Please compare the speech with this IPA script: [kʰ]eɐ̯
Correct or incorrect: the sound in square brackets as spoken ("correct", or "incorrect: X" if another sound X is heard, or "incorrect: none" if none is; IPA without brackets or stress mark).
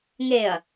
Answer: incorrect: ŋ